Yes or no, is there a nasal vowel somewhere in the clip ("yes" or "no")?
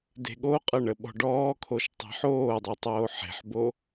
no